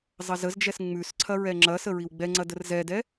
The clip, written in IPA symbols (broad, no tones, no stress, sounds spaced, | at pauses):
zˤ ɐ z ə z d͡ʒ ɛ s ŋ͡m ʉ s ǀʰ ɐ ɹ ɛ ŋ͡ǁ ɐ s ə ɹ i w ɡ͡b ɛ ŋ͡ǀ ɐ d ə r z ɛ d ɛ